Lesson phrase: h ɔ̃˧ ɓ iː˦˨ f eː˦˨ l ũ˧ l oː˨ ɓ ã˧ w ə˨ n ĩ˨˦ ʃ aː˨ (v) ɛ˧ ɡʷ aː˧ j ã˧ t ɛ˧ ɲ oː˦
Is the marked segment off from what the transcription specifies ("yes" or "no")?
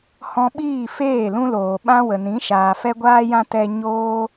yes